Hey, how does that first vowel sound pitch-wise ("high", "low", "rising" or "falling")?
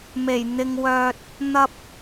low